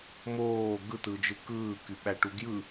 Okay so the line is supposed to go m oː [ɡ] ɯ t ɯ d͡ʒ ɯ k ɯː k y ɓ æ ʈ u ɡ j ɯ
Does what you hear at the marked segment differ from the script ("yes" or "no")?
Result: no